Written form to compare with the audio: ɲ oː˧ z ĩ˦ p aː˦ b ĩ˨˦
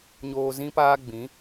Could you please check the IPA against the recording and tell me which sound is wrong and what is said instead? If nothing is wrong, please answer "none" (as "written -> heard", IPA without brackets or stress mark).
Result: b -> ɡ͡b